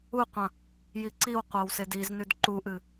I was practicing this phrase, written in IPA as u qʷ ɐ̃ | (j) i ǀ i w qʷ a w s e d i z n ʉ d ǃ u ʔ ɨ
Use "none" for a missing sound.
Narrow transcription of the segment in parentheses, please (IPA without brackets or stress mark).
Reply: j